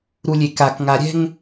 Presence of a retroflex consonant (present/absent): absent